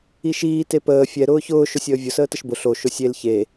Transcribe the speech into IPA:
i ʃ iː t e p əː fʲ ɛ ɾ ʊː ç ʊː ʃ ʊ sʲ əː vʲ ʊ s əː t ə ʃ b ʊ ɬ o ʃ ʊ sʲ e l ç e

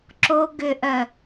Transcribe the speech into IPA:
ǁ o ɡ ʏ ʔ œ

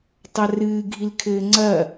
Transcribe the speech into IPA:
tˤ a r ɨː ɡʱ i l kʰ ɘː ŋ͡ǀ ɐ

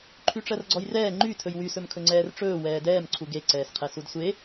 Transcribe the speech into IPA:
ǃʰ y ʈ͡ʂ ɜ r ɡ͡ǀ ɔ j r ɛː ŋ͡ǃ y tʰ ɵ j w y s ɵ m kʰ ɵ ŋ͡ǀ ɛː r ʈ͡ʂ ɵː w ɛː d ɛː m ǀʰ u ɡ e ǀ ɛː s qʰ ɛ s u d sʷ e

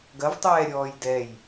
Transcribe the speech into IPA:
ɡ ɐ v tˤ ɛː ɾʲ ɔː j d ɛ j

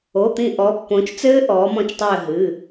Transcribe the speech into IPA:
o˩˧˩ t̪ ĩ˧˩ ʔ ɔ˩˧ pː õː˩˧ t͡ʃ t͡s ɘː˦˥ ʔ ɔː˩˧ m ɔ̃˧˩ t͡ʃ tˤ ɘː˧˩ ɦ ɨ˩˧˩

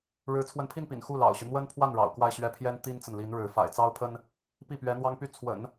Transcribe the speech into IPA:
ɻ ɻ̩˧˥ t͡sʰ w ə˧˥ n pʰ i˥˩ n p ḭ˨˩ n x u˥˩ l ɑ̰˨˩ ʊ̯ ɕ y˦ n̪ w ə˥ n pʰ w a˥˩ n ɻ ɑ̰˨˩ ʊ̯ k w a˥˧ ɪ̯ ɕ ɥ ɛ˥˩ pʰ j ɛ˥ n t̪ i˥ n t͡s ə˨ n l i˧˥ n ɻ ɻ̩˧˥ f a̰˨˩ ɪ̯ t͡s ɑ˥ ʊ̯ pʰ ə˥ n | p i˥˩ p ɥ ɛ˧˥ n̪ w ɑ˥ ŋ p y˥˩ t͡sʰ w ə̰˨˩˦ n

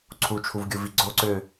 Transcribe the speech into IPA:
ǀʰ u t͡ʃʰ u v ɡʲ u v i ɡ͡ǀ o ǀ ø

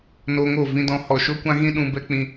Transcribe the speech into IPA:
n o˧ ŋ o˦˨ v ĩ˧ d ɔ̃˧ h ɔ˨ ʃ o˦ kʷ ã˦ ɣ ĩ˦ ɗ ũ˧ b ɛ˦ k͡p ĩ˧

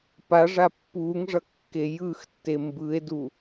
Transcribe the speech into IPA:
p a ʐ a pː uː ŋ ʐ ʌ kː e j ɯ x tː e m b ɯ e̯ d u

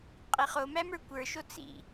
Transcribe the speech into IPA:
qʼ i χ o m æ m ə˞ kʷ ə˞ ʃ o t͡s ḭ

